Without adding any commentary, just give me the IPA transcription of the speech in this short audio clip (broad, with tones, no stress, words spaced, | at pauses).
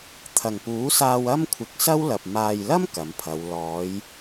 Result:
t̪ʰɐ˨˩ŋpuː˨˥saː˧w ɐ˥mkʷʰɪ˨k̚sɐ˥w lɐ˨p̚ maː˨jlɐ˥m kɐ˨˥mpʰɐ˨˧w lɔː˨˧j